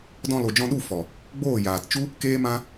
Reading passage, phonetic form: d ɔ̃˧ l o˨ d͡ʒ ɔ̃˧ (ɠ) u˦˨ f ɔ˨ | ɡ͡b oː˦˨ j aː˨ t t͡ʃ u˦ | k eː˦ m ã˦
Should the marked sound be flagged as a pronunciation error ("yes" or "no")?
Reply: yes